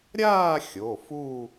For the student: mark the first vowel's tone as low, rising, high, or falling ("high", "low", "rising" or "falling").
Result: falling